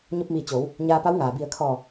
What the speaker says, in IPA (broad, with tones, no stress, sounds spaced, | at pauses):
ɲ o˧ p̚ m iː˧˩ t͡ɕ oː˩˧ w | ɲ aː˧ p a˧˥ w ŋ aː˩ b i˧˩ ə̯ kʰ ɔː˧˩